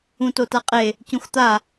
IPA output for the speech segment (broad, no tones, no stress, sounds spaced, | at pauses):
ũ t o t a qʼ e | c ũ x t̪ a